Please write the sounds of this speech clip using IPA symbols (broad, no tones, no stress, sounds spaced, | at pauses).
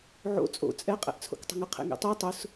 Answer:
ʕ o̰ t͡sʼ o̰ t͡sʼ ɛ qʼ ɛ̰ ʔ t͡sʰ o̰ k tˤ ə̤ ŋ ə qʰ ḛ ŋ ḛ tˤ ɜ tˤ ʊ s